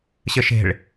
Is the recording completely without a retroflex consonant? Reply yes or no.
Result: no